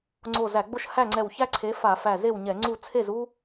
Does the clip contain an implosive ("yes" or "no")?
no